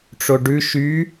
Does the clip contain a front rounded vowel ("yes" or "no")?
yes